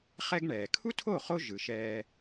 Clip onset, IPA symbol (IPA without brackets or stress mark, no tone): χ